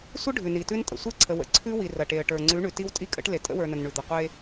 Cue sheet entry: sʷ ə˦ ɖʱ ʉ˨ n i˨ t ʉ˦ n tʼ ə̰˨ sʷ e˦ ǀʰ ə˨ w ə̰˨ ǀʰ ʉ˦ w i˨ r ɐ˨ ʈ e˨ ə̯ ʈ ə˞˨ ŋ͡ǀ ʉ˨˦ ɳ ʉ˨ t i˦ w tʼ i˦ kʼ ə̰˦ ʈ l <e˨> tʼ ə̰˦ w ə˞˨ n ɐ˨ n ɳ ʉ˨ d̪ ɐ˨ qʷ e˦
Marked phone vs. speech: correct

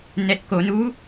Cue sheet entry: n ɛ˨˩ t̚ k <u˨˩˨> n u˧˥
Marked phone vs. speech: incorrect: o˨˩˨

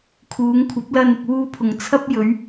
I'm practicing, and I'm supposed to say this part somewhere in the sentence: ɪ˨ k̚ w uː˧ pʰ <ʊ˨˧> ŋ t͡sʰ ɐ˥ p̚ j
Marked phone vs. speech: incorrect: ʊ˨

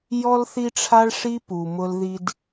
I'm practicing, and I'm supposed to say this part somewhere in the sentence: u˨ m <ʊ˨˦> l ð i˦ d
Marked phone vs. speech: incorrect: ʊ˦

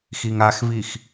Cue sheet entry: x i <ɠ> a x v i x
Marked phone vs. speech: incorrect: ŋ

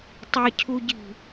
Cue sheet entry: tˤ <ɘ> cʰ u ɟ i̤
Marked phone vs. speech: incorrect: e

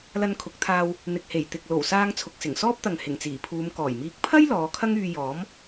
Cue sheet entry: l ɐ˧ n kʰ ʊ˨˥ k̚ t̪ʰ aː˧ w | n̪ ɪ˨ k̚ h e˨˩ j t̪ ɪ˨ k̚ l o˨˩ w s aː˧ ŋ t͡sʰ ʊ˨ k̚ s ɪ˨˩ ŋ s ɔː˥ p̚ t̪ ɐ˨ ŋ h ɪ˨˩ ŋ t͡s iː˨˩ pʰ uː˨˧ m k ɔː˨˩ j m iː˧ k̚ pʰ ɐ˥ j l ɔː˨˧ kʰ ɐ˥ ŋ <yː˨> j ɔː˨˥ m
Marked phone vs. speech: incorrect: yː˧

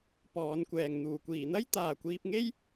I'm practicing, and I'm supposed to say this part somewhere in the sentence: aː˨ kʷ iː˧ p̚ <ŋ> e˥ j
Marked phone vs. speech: correct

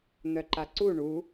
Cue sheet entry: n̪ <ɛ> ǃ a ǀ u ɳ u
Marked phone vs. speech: incorrect: œ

